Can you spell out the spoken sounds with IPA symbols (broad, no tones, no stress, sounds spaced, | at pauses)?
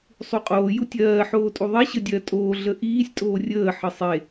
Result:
sˤ u qʼ oː j u tʲ ɜː ħ oː tʼ u ðˤ e ɕ ə dʲ ɜ tʼ oː ɮ ə ʔ iː sʲ tʼ oː rʲ əː ħ ə sˤ e